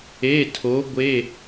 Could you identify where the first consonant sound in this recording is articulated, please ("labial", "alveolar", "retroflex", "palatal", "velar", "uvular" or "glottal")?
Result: alveolar